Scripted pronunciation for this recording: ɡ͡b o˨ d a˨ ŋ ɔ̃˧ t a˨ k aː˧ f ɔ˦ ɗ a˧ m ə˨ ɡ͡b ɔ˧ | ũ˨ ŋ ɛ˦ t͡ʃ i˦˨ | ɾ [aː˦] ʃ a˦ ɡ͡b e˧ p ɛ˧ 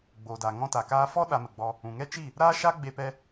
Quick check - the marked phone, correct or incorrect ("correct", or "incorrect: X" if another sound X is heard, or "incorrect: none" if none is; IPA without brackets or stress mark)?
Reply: correct